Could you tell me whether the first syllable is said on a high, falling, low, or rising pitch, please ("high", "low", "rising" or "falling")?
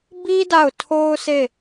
high